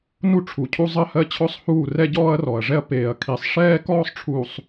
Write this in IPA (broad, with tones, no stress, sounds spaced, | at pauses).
n u˦ ʈ͡ʂʰ u˨ cʰ u˦ zˤ ɜ˦ h ɜ˦ t͡ɕʰ ɔ˦ sˤ h uː˦˨ r ɛ˦ ɟ ɔː˦ ɐ̯ r ɔ˨ ɐ̯ ʐ ɛ˦ ɐ̯ p eː˨ ɐ̯ kʰ i˨˦ sˤ ʂ ɛː˦ k ɔː˦ sˤ ʈ͡ʂʰ uː˨ sˤ